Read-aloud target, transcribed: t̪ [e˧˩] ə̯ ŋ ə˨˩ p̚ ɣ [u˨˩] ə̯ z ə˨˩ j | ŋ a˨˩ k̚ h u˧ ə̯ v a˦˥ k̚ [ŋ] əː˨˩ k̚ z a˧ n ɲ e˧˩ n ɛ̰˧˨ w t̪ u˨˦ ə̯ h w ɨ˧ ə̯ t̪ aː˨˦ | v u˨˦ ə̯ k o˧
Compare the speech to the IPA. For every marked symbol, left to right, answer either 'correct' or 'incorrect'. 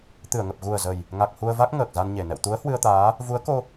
incorrect, correct, correct

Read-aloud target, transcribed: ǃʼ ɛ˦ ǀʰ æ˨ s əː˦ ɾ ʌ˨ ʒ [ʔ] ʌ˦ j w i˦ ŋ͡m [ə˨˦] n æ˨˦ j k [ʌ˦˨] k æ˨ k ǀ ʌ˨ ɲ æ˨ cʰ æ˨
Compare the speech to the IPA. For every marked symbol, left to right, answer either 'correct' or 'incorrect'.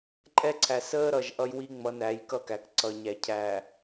correct, incorrect, correct

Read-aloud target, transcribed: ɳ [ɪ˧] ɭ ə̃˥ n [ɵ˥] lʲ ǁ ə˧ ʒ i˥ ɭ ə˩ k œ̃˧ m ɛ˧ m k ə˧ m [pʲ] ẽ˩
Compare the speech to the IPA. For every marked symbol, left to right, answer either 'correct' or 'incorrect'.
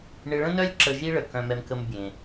correct, incorrect, incorrect

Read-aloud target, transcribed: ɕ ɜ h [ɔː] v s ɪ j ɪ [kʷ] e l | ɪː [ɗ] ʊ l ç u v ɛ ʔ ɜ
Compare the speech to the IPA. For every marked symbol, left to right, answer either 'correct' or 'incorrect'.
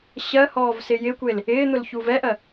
correct, correct, incorrect

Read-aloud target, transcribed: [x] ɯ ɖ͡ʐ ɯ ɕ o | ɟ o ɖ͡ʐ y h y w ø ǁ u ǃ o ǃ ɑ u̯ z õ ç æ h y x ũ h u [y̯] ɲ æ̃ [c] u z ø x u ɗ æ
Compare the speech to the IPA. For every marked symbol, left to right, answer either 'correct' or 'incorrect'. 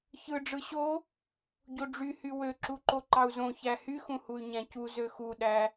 incorrect, correct, correct

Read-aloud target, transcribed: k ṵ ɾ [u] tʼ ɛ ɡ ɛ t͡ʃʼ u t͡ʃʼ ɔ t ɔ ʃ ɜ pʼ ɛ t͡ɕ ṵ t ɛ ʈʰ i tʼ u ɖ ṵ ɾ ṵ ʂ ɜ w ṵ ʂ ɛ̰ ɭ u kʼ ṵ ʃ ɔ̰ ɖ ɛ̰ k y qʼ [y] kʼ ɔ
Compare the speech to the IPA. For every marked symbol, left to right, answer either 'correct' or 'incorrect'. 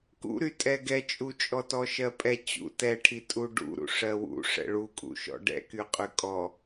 incorrect, correct

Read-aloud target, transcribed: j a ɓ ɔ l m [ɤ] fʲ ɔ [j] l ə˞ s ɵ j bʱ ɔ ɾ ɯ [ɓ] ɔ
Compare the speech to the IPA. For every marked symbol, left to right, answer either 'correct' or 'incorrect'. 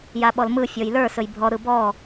incorrect, correct, incorrect

